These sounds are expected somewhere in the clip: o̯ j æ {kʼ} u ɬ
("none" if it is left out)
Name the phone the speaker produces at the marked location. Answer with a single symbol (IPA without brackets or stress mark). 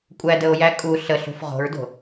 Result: kʼ